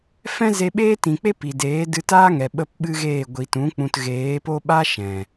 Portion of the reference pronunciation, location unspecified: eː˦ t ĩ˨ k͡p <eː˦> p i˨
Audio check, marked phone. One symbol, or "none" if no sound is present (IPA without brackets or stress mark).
e˦